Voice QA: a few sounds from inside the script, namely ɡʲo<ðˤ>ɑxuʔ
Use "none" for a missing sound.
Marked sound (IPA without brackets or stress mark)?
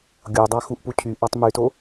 dˤ